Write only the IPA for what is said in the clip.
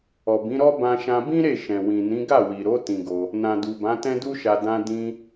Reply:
ɔ˨bĩ˨˦ɾɔ˦ bã˧ʃã˧bĩ˦ ɾe˦˨ʃɛ̃˨ wĩ˨nĩ˨˦ ɡa˦˨wi˨ɾo˨˦ tĩ˧ɡo˧ | nã˨du˨bã˨˦ tɛ̃˦du˦ʃa˧ dã˧ dĩ˧

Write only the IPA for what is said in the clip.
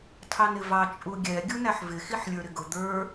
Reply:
tʰɑnɪvɑ t͡ʃʼuɡʲɛ ɡʲunæħvɪ xiħlʲə˞ɾɪɡʊ d̪ə˞

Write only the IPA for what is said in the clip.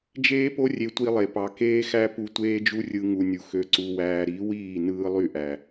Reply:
d͡ʒeː˦po˦ rʲe˧tʷi˧lˠe˨ pɑ˨keː˦ xæ˦pu˧ tʷeː˦d͡ʒu˦rʲɯ˧ ŋu˨ nʲu˨xø˧ǀu˧wæː˧ ɾi˨˦wiː˦˨ nɯː˧lˠy˦˨ ʔæ˨

